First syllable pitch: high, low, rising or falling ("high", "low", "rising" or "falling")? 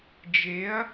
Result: rising